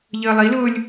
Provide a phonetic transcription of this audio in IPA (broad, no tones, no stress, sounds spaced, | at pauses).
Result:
ʎ əː lˠ i l ʊː lʲ